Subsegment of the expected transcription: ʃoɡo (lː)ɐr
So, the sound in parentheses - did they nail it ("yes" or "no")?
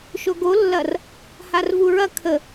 yes